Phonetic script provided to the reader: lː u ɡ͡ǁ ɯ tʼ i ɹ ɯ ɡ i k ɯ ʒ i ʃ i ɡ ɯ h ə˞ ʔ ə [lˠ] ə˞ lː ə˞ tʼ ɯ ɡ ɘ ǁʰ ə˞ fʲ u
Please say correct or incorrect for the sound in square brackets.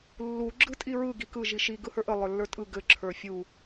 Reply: correct